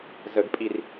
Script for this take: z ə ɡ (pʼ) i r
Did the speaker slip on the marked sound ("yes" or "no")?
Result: no